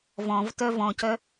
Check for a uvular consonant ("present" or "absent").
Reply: absent